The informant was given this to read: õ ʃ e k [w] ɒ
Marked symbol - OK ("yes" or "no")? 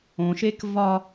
no